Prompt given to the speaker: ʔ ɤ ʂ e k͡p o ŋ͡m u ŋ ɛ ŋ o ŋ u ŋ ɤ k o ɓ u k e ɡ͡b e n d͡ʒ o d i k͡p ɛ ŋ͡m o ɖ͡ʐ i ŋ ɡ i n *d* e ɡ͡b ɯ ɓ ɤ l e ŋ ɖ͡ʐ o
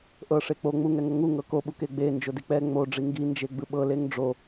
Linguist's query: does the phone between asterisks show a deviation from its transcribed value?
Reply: yes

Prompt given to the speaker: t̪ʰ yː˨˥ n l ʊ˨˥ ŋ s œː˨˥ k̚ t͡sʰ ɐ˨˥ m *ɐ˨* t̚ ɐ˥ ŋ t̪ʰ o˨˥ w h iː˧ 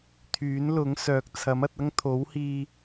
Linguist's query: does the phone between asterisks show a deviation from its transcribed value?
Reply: yes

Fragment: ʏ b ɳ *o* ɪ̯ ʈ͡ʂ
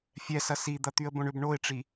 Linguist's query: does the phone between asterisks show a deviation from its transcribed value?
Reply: no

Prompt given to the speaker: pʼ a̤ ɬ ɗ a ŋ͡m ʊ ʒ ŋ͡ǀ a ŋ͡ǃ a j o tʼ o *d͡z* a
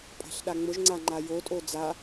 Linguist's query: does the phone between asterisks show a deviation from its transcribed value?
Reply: no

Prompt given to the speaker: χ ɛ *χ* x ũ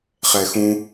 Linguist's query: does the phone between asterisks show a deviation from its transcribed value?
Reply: yes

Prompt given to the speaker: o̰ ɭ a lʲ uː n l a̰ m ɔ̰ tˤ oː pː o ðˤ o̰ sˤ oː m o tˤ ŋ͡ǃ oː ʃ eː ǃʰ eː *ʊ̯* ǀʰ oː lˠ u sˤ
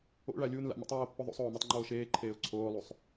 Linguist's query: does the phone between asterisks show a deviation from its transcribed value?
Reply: no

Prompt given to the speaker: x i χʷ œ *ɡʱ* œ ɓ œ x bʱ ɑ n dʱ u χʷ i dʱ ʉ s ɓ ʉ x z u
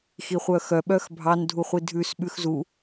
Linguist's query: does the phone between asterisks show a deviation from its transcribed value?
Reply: yes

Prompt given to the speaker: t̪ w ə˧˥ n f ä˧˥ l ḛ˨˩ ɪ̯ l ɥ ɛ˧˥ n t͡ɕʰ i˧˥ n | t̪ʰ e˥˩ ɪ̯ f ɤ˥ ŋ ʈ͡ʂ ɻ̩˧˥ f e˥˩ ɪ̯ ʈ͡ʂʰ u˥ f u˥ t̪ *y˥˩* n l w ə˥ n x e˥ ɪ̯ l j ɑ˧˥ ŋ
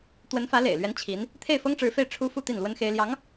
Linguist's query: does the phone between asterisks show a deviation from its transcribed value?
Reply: yes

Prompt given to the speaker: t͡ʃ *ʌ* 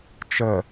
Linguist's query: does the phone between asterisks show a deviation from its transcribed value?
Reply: yes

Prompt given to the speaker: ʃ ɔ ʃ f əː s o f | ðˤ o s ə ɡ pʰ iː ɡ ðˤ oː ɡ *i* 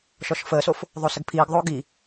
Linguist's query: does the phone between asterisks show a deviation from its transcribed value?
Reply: no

